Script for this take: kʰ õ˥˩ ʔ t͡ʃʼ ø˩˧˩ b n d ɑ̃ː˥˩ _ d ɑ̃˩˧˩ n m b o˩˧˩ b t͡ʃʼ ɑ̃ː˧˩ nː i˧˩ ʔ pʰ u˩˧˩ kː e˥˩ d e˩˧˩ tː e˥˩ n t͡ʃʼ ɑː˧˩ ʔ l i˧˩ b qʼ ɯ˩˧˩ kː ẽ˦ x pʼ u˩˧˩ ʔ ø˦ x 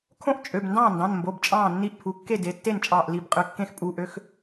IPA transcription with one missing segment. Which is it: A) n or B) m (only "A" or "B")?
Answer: A